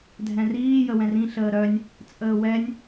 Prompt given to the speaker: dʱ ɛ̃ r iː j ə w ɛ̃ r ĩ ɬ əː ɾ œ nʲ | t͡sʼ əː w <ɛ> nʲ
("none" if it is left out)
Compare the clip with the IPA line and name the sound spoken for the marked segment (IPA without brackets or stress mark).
ɛ